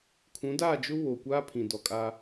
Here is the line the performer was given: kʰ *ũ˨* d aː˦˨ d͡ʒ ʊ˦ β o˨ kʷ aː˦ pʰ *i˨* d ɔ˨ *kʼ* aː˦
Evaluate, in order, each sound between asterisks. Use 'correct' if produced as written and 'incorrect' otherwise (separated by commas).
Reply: incorrect, incorrect, correct